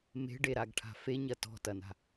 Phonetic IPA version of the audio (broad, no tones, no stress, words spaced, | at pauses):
me̤ɖeɾaɡʈʰa̤ feɲɐ tɔ̤tɐna̤